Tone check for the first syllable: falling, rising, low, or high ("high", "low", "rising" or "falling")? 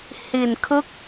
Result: low